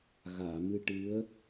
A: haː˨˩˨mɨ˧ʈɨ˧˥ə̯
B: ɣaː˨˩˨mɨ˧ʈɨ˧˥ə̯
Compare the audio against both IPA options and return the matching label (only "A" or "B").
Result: B